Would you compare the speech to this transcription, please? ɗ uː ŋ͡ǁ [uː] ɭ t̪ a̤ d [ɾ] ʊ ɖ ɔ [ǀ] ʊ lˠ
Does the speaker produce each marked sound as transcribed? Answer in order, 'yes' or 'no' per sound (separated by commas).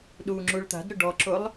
no, yes, no